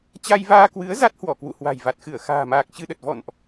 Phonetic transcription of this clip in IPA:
t͡ɕ a˧ j v aː˧ k w ɨ˨˦ ə̯ z a˦˥ t̚ h w ɔ˧˩ k w ṵ˧˨ h w a̤˨˩ j v a˨˩ t̚ x ɨ˧˩ ə̯ x a̤ː˨˩ m aː˨˩ k̚ t͡ɕ ɨ˧ ɗ ə˨˩ t̚ v ɔ̰˧˨ n ʔ

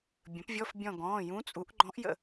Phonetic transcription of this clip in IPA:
bʲ ə̃˩˥ p vʲ ɔ˧˥˧ f bʲ ɔ̃˦˨ ɡ ɔ̃ː˩˧˩ j ũ˧˥ t͡sʼ u˩˥ ʔ ɡ͡ǃ ɔ̃˧˥ ʔ j ə̰˦˨

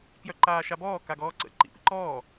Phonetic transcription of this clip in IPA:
k j œ ǃ aː ʃ a b ɔː k a ɡ ɔː ǀ ə̰ ǃ ḭ p ḭ ǃ ɔː

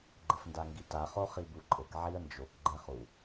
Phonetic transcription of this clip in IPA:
ɡ͡ǃ ɘ f n d a ŋ ɡ i t a χ o χ i b u ǃʼ ɘ k ʕ i ə̯ n d͡ʒ o k ɡ͡ǃ ɛ χ u

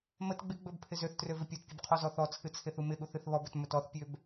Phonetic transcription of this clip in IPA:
m ə t ɡ͡b ɪ ɡ͡b ɵ b pʰ ɪ z ø θ t r ø v ɪ pʲ o t pʲ u b qʰ ɔ z ɔ θ ɔ t͡sʰ ɨ t͡sʰ ɪ θ u m ɪ ɠ u θ ɨ θ β ɔ b ɵ t m ɵ t ɔ θ pʲ ø b

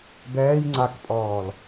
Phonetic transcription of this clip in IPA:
b ɛː j ŋ͡ǀ a k pʼ ɔː l

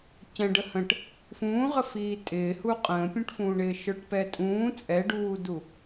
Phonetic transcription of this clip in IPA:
c ɛ̃ ɖ ə h ə̃ ʈ | f ũː ʁ ə f iː tʼ ɪː h u qʼ ə̃ː pʲ ũ ʈ f ũː ɳ ɪː ʃ ə˞ ʈ p ɛ tʼ ũː t͡sʼ ɛ ɖ uː d u

